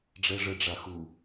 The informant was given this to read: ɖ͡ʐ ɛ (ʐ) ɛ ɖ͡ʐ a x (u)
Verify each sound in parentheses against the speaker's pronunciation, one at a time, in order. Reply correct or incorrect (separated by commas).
correct, correct